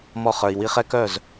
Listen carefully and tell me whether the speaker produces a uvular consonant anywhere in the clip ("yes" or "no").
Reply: yes